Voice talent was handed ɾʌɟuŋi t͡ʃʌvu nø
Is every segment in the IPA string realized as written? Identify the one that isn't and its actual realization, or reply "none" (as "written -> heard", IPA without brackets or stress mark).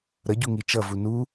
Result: ø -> u